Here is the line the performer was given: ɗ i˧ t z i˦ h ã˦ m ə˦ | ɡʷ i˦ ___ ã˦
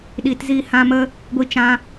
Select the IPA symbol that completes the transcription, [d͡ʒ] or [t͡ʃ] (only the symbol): t͡ʃ